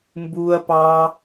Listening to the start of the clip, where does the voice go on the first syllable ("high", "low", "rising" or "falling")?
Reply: low